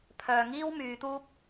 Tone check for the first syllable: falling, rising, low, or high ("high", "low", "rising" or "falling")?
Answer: low